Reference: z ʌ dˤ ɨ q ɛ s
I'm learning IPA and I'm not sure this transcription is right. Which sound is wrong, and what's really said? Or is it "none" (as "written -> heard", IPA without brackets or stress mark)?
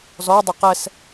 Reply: ʌ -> ɔ